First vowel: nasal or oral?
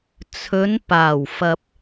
oral